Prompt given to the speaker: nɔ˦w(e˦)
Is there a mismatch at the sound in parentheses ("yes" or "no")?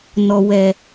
yes